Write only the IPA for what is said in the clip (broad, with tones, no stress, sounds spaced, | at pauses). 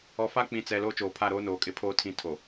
ɔ˨ f a˦ k͡p ĩ˨ t͡s ɛ˨ l oː˦ t͡ʃ oː˨ pʰ a˦˨ ɾ oː˦ n oː˨ kʼ ɪ˦ pʰ oː˦ tʰ ĩ˦˨ tʰ o˨